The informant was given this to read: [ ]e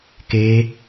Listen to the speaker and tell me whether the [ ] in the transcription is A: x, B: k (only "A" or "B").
B